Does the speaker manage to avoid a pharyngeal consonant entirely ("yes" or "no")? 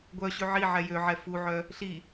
no